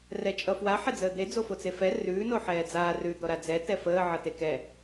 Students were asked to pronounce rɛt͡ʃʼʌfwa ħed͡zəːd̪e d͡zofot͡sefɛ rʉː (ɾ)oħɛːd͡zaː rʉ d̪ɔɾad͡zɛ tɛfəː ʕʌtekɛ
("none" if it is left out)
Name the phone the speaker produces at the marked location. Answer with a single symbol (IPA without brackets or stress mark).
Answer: n